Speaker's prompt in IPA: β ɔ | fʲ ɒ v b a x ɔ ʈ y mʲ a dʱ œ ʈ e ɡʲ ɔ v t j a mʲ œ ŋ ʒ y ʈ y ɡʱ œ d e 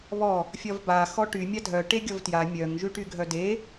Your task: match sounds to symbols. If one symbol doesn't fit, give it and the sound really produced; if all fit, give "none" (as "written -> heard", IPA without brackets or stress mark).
none